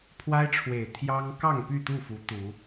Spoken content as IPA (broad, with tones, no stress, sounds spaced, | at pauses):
pʰ w a˦ ɪ̯ ʈ͡ʂʰ w e˨˩ ɪ̯ t̪ʰ j ɑ˦ ŋ k ɑ˥˨ ŋ p y˥˨ t̪ u˥˨ f u˨˦ t̪ u˨˦